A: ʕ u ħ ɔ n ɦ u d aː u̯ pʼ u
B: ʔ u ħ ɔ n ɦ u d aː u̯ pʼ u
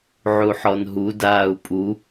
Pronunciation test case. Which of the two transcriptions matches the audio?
A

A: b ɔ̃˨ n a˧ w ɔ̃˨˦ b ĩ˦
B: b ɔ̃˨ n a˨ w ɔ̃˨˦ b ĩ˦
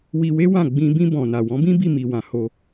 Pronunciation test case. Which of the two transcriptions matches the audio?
B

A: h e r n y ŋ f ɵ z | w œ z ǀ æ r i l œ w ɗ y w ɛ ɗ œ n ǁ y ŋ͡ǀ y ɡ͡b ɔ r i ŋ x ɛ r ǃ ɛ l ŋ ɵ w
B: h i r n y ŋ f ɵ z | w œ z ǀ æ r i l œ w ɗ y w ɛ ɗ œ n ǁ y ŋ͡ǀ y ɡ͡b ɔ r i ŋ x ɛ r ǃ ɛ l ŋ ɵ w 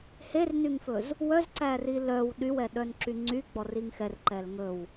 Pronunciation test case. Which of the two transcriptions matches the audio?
A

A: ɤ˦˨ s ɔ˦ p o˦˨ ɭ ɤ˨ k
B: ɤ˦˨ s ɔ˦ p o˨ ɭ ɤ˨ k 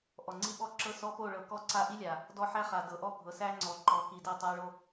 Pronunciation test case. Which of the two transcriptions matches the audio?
A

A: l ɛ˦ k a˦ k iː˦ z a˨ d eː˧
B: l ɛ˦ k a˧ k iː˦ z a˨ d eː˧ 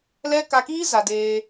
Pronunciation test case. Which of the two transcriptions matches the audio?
B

